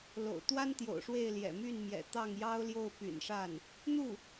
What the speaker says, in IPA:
l o̰˨˩ ʊ̯ t̪ w a˥ n t̪ j o̰˨˩ ʊ̯ ʂ w e˥˩ ɪ̯ l j ɛ̰˨˩ m y˥˩ n m j ɛ̰˨˩ t̪ ɑ˥˩ ŋ j ɑ˥ ʊ̯ l j o˥˩ ʊ̯ p y̰˨˩ n ʂ a˥˩ n | n̪ u˥˩

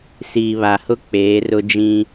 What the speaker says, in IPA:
s iː˨ β a˨ h ʊ˦ k͡p eː˨˦ r ʊ˦ d͡ʒ ĩ˦

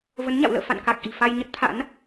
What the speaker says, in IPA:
v ə˨˦ n ɲ a̰˧˨ w l ə̰ː˧˨ f a̰˧˨ n k a˨˩ k̚ ʔ i̤˨˩ f a˧ j ɲ ə˦˥ t̚ t̪ʰ a̰˧˥ n

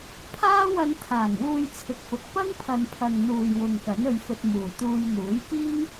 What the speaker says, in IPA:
pʰ aː˥ w ɐ˧ n t̪ʰ aː˨˩ ŋ w uː˧ j t͡sʰ ɪ˨ k̚ f ʊ˨ k̚ p ɐ˥ ŋ pʰ ɐ˨ n pʰ ɐ˨ ŋ n̪ uː˨ j w ʊ˨ ŋ k ɐ˨˥ n ɵ˧ ɥ f ɵ˧ t̚ m uː˨˩ t̪ uː˧ j n̪ uː˨˥ j k iː˥ ŋ

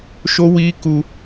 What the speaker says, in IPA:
ʃ o˦ w iː˦ k u˦

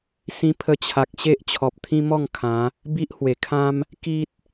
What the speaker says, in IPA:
s ĩ˧ pʰ ə˧ t͡ɕʰ a˨ k̚ ɕ e˦ ʔ t͡ɕʰ ɔ˨ p̚ t̪ʰ ĩ˦ m ɔ˥˧ ŋ kʰ ã˨˦ | b i˦ ʔ h w e˨˩ kʰ ã˦ m | k i˦ t̚

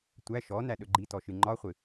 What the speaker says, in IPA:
tʷ æ ʃ ɔ n æ ɗ ɵ ɡ͡ǃ i t ɔ ʃ ɨ ŋ͡ǃ ɒ χʷ ɨ

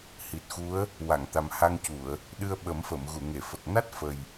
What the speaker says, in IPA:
h i˨˩ t̚ x u˧˥ ə̯ | w a˨˩˨ ŋ t̪ a˨˩ m h a˧ ŋ c u˨˩˨ ə̯ | ɗ ɨ˧ ə̯ ɓ ə˨˩˦ m f ə˨˩˨ m ɣ u˨˩˨ ŋ e˨˩˨ f ə˨˩ k̚ n a˦˥ t̚ f ə˨˩ j

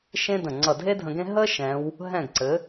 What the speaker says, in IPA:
ʃ ẽ˥ d ə̃˧˩ ŋ͡ǀ ʌ˧˩ dʱ e˥ dʱ ə̃˧ ɡ ẽ˥ ɦ ə˥ ʃ ɛ̃˧˥ w | ɦ ɛ̃˥˨ ɡ ǀ ɘ˩˥

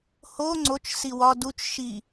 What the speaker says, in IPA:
h o ŋ͡ǀ o t͡ʃ s i w ɒ d u t͡ʃ ʃ i

